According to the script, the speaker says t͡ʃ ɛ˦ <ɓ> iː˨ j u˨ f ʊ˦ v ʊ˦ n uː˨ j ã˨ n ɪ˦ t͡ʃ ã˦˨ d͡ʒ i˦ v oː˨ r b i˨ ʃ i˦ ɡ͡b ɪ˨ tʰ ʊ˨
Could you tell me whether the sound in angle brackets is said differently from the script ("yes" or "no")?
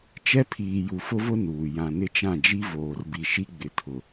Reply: yes